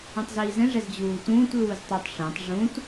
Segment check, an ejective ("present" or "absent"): absent